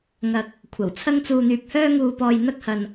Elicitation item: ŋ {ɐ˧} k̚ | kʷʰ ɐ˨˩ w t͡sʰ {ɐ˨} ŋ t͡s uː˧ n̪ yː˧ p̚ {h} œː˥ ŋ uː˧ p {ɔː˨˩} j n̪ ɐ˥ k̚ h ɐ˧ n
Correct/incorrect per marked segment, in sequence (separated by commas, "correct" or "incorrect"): correct, incorrect, correct, incorrect